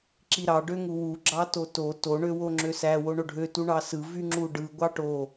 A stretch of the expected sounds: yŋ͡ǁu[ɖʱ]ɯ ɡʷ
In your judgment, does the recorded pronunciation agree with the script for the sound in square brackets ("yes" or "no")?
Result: no